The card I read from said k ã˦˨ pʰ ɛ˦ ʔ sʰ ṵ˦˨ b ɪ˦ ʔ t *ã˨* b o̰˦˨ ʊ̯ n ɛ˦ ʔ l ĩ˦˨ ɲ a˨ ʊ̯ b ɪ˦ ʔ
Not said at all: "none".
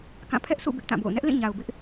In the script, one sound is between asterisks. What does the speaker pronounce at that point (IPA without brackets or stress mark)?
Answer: ã˦˨